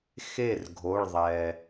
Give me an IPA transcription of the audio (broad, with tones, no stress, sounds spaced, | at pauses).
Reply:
x e˥˩ r ɡʱ o˩˧˩ ɭ ðˤ ɛ˩